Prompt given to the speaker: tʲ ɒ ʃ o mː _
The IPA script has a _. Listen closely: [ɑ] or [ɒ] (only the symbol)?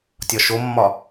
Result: ɒ